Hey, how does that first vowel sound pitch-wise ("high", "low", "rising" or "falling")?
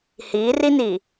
rising